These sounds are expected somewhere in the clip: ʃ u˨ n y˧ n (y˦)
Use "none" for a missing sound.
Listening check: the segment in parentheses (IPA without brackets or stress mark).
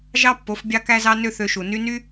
y˦